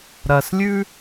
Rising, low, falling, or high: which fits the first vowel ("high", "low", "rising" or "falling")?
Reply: low